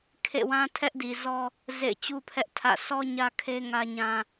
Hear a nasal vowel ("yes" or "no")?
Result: yes